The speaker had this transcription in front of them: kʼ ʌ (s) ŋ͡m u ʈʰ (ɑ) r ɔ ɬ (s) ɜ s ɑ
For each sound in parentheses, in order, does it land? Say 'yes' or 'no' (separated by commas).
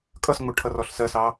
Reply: yes, no, yes